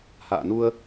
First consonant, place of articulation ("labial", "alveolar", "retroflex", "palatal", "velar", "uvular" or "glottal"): glottal